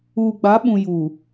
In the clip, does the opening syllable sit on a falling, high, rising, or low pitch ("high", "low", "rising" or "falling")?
low